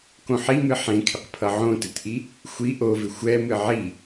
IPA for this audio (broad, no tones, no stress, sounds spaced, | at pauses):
k õ ħ i m ɨ ħ ẽ kʰ ɪ q pʰ ʌ ʕ õ t ɨ t ʔ i | xʷ i ʔ o v ɪ xʷ ɛ m ɨ ʕ i